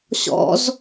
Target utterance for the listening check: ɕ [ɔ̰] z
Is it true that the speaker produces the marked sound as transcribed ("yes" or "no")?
yes